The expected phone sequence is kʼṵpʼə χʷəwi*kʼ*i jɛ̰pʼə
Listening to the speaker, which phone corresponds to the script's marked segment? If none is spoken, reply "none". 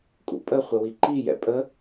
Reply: ǃ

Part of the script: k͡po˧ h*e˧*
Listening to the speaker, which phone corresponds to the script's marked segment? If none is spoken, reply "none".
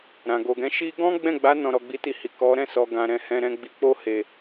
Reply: e˨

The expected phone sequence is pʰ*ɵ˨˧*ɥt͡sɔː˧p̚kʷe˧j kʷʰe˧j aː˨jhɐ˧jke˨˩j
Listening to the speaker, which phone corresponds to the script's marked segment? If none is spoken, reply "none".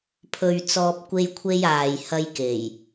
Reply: ɵ˧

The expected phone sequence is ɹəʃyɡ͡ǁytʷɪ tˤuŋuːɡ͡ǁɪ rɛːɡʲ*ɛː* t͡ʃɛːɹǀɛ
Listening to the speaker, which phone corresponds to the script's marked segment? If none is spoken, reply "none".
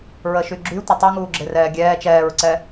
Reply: ɛː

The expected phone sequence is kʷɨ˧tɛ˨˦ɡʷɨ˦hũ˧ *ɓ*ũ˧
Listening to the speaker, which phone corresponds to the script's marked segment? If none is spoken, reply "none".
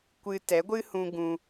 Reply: ɡ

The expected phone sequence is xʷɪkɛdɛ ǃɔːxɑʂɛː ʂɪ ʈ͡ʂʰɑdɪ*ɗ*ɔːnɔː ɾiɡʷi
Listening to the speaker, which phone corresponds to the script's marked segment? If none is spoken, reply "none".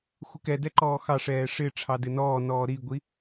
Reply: n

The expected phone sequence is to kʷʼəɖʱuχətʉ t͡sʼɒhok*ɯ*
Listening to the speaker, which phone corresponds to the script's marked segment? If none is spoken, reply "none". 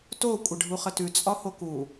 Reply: u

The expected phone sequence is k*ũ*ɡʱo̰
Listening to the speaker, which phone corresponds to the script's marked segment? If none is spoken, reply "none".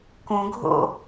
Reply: ũ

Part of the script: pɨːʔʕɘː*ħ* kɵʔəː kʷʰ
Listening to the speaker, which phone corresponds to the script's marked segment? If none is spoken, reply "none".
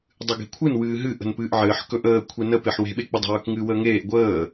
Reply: ħ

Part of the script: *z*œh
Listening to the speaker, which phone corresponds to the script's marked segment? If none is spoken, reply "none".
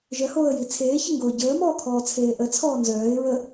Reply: ʒ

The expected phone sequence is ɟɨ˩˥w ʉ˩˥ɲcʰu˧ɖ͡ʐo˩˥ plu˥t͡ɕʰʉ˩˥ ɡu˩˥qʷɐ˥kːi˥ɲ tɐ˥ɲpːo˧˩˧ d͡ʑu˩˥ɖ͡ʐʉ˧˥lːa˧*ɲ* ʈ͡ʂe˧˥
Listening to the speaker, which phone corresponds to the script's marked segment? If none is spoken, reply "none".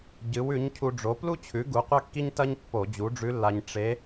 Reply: ɲ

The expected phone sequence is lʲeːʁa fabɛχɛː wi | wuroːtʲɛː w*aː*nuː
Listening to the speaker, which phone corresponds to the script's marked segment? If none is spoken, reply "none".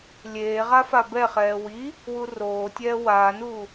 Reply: aː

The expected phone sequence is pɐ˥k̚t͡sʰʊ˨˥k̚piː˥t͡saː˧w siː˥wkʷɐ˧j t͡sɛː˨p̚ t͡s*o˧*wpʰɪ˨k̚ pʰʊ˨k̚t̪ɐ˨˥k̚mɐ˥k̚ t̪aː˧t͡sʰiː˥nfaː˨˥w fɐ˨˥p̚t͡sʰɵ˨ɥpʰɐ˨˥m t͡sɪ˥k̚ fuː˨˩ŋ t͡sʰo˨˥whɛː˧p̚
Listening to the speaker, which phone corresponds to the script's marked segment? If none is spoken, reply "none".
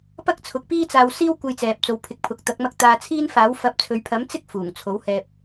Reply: o˨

